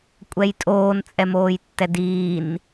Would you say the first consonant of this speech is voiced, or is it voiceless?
voiceless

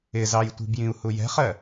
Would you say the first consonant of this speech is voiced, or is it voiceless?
voiced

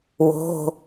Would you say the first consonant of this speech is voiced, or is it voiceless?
voiced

